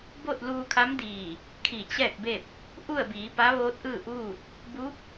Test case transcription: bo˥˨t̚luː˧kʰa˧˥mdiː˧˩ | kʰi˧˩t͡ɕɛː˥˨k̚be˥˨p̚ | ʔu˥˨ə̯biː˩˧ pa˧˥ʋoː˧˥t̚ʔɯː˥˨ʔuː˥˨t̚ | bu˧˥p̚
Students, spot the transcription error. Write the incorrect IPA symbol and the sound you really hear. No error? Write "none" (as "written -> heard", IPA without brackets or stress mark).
none